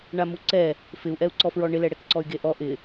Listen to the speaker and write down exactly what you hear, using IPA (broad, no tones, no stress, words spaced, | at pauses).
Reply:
ɳamuǀɛ | fɪu̯ʔɛu̯ǀɔfɹɔ ɳɪlɛɽɛkǀɔy̯ ɡeʔɔ ʔɪ